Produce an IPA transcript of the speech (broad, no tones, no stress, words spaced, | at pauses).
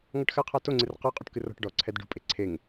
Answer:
ŋɔʈxaqʰa toŋ͡ǀɨr qa qʼuʈkɨrɔ̤ʈ ɖɔǀʰɛd ɖṳpʼe ǀʰeŋ